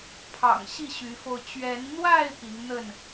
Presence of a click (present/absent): absent